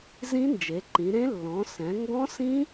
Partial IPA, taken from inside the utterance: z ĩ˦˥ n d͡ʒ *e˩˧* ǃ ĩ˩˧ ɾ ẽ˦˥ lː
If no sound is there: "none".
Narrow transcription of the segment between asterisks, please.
e˩˧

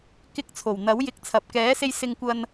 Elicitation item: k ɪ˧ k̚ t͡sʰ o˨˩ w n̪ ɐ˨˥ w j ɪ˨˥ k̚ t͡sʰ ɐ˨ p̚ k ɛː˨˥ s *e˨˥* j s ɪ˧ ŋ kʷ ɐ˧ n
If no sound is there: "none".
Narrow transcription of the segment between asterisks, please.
e˧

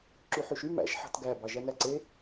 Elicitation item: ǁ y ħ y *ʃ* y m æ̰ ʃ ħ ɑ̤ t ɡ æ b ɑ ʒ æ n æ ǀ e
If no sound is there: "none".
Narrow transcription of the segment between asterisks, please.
ʃ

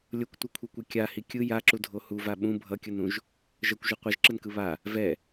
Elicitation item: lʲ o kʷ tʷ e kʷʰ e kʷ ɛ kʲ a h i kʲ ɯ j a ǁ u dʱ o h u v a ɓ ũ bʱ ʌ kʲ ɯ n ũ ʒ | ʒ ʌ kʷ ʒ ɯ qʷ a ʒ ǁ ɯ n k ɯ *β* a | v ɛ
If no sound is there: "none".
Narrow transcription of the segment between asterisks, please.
β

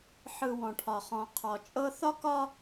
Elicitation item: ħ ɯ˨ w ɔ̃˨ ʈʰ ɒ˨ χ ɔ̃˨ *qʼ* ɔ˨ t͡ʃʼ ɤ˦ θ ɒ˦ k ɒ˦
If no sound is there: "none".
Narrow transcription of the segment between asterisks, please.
qʰ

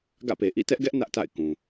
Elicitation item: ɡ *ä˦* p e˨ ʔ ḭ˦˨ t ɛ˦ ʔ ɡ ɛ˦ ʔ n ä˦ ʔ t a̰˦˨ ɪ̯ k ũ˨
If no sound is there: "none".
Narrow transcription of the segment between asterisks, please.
ä̰˦˨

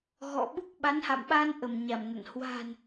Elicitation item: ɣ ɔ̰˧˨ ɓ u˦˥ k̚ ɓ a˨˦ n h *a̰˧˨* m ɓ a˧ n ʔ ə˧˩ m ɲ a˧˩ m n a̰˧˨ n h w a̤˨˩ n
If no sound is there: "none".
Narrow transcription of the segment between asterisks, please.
a̰˧˨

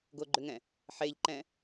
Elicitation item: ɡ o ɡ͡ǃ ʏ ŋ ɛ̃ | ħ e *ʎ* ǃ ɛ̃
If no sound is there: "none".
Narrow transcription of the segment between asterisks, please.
ʎ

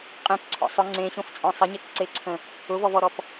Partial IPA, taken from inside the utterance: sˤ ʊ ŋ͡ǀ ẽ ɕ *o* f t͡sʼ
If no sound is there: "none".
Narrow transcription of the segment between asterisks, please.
õ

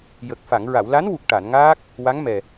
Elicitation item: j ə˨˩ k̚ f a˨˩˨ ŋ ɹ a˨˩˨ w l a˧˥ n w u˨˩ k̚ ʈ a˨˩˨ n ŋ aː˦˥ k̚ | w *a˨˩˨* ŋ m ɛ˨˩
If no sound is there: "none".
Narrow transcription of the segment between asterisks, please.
a˧˥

